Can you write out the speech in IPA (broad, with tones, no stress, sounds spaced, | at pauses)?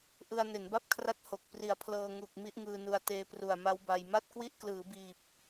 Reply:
ʔ ɯ˧ a̯ n e˩˦ n b a˥˩ p̚ kʰ r a˦˥ t̚ h o˨˩ k̚ p r i˨˩ a̯ pʰ l ɤː˧ ŋ u˨˩ k̚ m i˦˥ ʔ ŋ ɯː˧ n u˧ a̯ t eː˦˥ p r u˨˩ a̯ m a˦˥ w b a˧ j m a˥˩ t̚ k w i˥˩ ʔ k l ɯː˩˦ b iː˨˩ p̚